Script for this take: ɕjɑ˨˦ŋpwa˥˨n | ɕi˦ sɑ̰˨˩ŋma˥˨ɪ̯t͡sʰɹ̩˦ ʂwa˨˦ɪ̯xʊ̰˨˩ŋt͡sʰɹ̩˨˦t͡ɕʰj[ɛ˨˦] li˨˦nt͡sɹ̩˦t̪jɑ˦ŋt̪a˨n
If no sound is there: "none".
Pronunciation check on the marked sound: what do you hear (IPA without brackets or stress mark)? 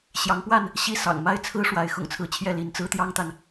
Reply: ɛ˥˨